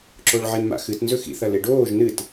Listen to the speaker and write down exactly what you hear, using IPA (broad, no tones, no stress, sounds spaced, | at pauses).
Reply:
ǁ o ɭ ʕ e n m a̰ x ɨ t n z ɵ x ḭ θ ɐ l e ɖ oː ʒ n ɨ t